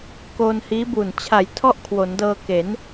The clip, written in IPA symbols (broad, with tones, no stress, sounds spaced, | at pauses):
k oː˧ n h iː˦˥ b uː˨˩ n t͡ɕʰ a˩˦ j tʰ ɔ˥˩ ʔ kʰ w o˩˦ n d ɤː˧ k e˩˦ n